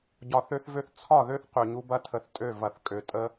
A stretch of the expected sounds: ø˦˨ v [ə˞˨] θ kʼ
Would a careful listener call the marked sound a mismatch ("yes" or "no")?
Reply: yes